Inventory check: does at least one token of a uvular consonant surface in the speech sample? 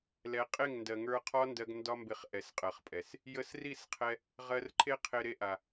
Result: yes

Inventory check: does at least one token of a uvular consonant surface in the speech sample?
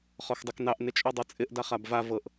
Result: yes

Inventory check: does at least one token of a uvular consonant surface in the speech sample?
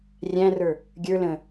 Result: no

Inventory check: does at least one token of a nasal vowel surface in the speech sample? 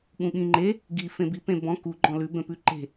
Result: yes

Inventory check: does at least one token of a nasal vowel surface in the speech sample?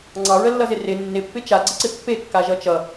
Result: no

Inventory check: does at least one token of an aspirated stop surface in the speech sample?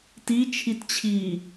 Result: yes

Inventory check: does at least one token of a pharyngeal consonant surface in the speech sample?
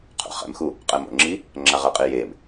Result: no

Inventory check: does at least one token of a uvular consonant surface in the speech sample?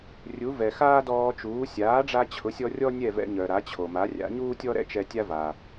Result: no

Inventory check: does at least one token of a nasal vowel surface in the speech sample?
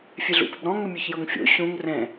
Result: yes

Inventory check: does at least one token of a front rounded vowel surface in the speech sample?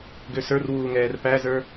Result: yes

